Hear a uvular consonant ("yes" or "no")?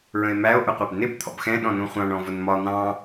yes